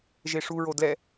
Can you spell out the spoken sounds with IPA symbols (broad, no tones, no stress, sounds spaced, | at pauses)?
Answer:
ʒ e ʂ u ɹ o d l ɛ